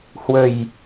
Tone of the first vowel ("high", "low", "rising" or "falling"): low